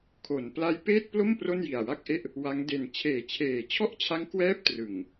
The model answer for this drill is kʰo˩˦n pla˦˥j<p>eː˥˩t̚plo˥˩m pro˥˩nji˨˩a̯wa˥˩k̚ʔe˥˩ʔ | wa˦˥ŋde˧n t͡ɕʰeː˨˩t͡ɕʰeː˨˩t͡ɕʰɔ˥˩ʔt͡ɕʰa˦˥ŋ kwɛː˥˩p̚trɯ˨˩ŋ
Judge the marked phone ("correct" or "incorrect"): correct